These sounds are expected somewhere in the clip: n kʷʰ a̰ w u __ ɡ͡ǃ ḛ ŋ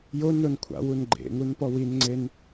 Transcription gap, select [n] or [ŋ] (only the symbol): n